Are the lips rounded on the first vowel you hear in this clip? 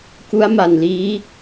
yes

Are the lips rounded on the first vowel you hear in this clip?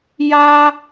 no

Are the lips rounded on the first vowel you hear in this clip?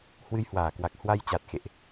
no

